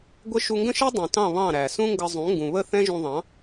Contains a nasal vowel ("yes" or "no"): yes